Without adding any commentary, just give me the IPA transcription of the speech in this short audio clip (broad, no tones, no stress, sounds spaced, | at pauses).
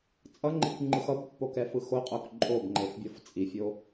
t͡sʼ ʌ ŋ͡ǃ i k ŋ͡ǃ ɯ x ʌ b pː o k ɛ f ɯ x o qʼ o k ǃʼ o b ŋ͡ǃ e f bʲ ʌ f t͡sʼ i fʲ o